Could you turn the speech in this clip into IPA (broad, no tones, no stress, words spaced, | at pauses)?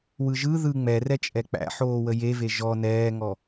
wɯʒɯ ðɯ ŋ͡mɛ rɛt͡ʃʼɛk͡pæ̰ ħoːwəjeve ʒɔ nɛːŋɔ